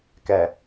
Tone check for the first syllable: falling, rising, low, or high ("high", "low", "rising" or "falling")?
low